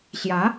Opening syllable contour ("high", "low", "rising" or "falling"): rising